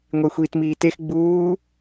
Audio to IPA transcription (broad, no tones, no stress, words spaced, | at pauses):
ŋʷexʷiːtmiːtex ɡ͡buː